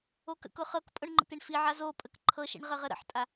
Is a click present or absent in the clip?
present